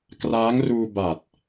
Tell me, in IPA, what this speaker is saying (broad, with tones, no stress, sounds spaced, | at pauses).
k r aː˦˥ ŋ r uː˧ b a˨˩ t̚